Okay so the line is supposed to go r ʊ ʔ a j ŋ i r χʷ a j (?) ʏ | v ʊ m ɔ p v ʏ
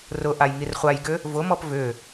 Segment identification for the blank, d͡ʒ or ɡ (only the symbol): ɡ